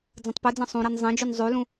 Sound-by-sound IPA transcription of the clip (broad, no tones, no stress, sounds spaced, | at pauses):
d͡z ɐ̃ tˤ p ɨ d͡z ɐ̃ sˤ ũ ɾ e n zˤ ẽ d͡ʒ ʉ n zˤ ʉ l ũ